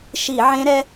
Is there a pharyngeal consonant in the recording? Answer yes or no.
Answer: yes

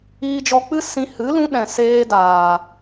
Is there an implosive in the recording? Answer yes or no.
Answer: yes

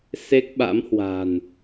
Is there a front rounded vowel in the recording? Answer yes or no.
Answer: no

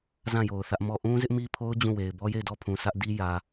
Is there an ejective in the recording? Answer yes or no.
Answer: no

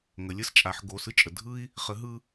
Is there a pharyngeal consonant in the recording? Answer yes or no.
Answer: yes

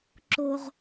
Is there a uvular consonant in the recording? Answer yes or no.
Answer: yes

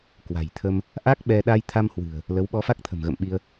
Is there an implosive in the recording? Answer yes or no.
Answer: yes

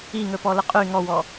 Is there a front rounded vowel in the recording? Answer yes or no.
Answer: yes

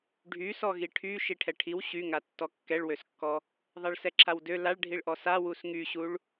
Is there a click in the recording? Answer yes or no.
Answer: yes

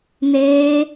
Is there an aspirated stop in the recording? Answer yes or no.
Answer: no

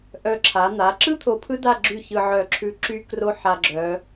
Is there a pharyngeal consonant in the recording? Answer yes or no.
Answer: yes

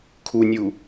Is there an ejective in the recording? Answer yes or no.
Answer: no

